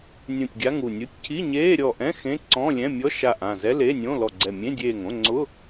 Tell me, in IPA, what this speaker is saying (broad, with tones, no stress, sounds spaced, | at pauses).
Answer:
nʲ ũ˧˩ tʲ ɡʲ a˧˥˧ ŋ u˧˩ nʲ u˧˥˧ tʲ cʰ i˧˥˧ ɲ eː˧˥˧ ɾʲ ɔ˧˩ ʔ ɛ̃˧˥˧ x ẽ˧˥˧ ǀ ɔ̃˧˥˧ lʲ ɛ̃˧˥˧ mʲ ɔ˧˥˧ ʃ a˧˩ ʔ ã˧˩ z ɛ˧˥˧ l e˧˥˧ nʲ õ˧˥˧ l ɔ˧˩ ɡ͡ǀ ɛ˧˩ mʲ ẽ˧˥˧ dʲ eː˧˩ ŋ õ˧˥˧ ŋ͡ǀ ʊ˧˥˧